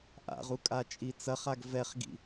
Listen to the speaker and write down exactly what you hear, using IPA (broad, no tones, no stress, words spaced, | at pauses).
ʔa̰ʁu kʼat͡ʃʼit͡sɐχaɡ vɛχɡḭ